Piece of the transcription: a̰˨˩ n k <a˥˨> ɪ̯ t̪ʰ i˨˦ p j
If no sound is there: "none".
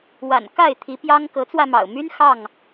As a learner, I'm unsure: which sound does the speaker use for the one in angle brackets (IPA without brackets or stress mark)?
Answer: a˥˨